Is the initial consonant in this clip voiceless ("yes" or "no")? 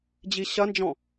no